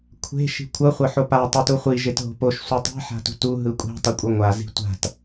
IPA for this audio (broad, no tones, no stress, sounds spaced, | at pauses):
kʷʰ e̤ ʃ i̤ kʷʰ ʌ χʷ ʌ ħ o p a tˤ u t u χʷ i ʒ e t ɦ o̤ p o ʃ sʷ i tˤ i̤ ħ a̤ t ṳ t u ɦ ɯ kʷʼ i̤ tˤ ʌ kʷʼ ʌ ŋʷ a z i̤ tʷ a̤ t